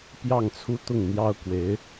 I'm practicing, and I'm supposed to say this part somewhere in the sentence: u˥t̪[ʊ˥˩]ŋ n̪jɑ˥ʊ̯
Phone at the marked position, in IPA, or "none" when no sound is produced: ʊ˥˩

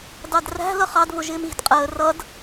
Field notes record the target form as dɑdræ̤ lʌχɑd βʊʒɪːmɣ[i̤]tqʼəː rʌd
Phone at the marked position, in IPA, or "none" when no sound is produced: i̤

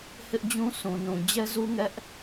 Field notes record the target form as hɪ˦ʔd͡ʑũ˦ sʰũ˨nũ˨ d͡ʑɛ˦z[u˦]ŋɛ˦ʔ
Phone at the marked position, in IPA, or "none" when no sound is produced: u˦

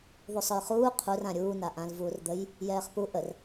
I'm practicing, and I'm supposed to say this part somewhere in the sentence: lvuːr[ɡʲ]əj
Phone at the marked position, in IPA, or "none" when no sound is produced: d̪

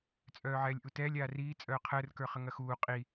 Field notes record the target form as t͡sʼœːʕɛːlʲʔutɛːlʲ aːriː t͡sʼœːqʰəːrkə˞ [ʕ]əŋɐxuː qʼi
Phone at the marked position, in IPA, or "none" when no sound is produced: χ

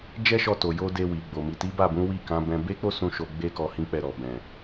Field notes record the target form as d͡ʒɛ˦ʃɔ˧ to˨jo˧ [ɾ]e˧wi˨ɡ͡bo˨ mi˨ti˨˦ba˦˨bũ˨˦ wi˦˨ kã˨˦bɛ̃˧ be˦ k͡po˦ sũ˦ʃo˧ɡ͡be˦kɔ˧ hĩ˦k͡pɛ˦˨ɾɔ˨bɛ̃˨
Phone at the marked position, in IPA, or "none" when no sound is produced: d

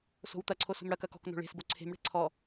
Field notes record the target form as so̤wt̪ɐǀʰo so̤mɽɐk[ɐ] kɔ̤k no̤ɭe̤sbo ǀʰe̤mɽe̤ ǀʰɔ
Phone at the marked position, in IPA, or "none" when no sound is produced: ɐ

